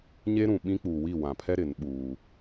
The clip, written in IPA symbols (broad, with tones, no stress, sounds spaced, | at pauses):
ɲ e˦ ɾ ũ˨ ɓ ĩ˦ k͡p uː˨ w i˦˨ w ã˨ pʰ ɛ˦ ɾ ɪ˨˦ n ɓ uː˦